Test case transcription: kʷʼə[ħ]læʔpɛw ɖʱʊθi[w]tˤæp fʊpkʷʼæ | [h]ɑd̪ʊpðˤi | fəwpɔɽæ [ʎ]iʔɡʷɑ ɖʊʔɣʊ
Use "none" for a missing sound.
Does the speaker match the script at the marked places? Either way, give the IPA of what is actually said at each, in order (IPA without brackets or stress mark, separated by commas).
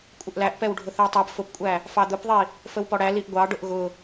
ʔ, w, f, l